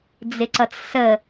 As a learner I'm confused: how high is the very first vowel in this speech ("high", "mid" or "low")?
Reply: high